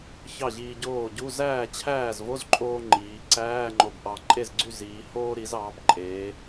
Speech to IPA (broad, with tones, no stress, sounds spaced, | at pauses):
ç ɑ˥˩ ʑ iː˧ ɟ oː˥˩ ɟ u˧˥˧ z æː˥˩ t͡ɕʰ æː˥˩ z v o˧˥˧ z ǃʼ oː˧ ŋ͡ǃ iː˩˧ ǀ æː˧˥˧ ŋ͡ǃ o˧˩ b ʔ ɑ˧˩ ǃʼ e˥˩ z ɡ͡ǀ y˥˩ z iː˩˧ h oː˧ ɾ i˩˧ z ɑː˩˧ b ǃʼ eː˩˧